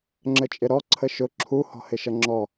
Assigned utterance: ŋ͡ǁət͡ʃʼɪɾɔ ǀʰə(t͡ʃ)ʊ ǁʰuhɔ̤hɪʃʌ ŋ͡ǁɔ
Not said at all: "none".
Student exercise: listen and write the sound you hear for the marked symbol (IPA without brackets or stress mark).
ʃ